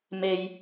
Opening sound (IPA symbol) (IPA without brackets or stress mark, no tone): m